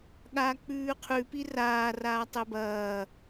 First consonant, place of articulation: velar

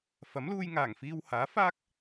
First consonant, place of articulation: labial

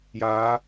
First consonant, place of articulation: palatal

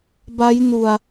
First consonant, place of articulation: labial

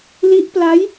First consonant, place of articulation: alveolar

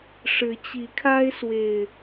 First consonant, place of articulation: retroflex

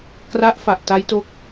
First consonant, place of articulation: velar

